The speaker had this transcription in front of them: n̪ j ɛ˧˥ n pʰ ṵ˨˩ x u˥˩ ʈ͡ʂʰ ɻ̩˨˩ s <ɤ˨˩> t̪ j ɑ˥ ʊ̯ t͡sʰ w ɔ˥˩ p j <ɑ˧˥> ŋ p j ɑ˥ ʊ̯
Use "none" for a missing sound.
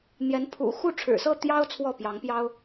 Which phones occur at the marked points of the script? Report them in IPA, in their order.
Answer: ɤ˥˩, ɑ˧˥

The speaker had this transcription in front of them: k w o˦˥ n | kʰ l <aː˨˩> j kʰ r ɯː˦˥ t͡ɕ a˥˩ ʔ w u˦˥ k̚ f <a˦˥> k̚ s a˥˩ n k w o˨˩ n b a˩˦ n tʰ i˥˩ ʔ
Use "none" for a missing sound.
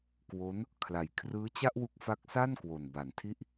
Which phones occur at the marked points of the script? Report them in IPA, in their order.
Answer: a˨˩, a˦˥

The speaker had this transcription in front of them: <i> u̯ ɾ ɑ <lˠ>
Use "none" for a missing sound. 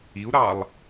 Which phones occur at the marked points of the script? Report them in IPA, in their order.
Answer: i, lˠ

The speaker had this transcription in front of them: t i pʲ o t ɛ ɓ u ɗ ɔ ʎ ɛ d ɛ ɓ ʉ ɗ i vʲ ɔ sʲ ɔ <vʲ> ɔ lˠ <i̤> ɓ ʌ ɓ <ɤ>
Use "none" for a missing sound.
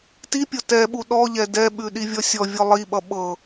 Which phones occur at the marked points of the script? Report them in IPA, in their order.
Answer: vʲ, i, ɤ

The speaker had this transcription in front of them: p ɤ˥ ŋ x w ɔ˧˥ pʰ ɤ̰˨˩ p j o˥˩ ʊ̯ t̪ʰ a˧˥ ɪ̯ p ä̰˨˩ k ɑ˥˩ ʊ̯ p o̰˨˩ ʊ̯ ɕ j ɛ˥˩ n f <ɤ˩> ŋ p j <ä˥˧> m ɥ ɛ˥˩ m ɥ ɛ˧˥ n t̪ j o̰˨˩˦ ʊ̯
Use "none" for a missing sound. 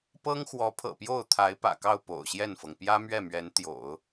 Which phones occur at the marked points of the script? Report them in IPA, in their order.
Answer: ɤ˩, ä˥

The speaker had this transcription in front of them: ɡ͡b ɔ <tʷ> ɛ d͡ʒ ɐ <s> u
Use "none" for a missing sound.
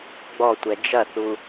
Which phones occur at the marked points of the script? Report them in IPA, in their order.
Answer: tʷ, θ

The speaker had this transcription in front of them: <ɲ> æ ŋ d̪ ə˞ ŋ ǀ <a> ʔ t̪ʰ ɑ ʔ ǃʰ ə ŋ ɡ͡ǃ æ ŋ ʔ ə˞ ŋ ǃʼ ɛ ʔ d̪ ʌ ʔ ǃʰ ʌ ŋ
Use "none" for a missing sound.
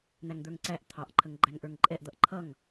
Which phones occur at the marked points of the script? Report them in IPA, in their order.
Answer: n̪, æ

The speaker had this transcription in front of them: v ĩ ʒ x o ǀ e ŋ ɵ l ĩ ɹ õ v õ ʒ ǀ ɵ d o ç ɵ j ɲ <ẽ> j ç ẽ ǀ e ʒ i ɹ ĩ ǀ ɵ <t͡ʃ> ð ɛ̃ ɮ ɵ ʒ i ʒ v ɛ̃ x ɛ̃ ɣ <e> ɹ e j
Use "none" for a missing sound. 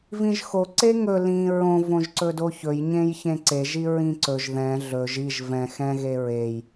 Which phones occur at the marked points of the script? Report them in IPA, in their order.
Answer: ẽ, ʒ, e

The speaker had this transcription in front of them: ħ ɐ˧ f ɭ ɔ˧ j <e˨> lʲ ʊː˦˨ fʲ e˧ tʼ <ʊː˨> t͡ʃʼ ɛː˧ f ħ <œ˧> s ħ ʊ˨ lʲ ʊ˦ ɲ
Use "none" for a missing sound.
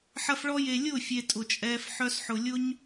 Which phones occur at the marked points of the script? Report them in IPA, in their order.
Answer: e˨, ʊ˨, œ˧

